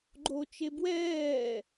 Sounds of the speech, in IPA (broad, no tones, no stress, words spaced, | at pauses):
ɡ͡ǃot͡ʃe bwɛː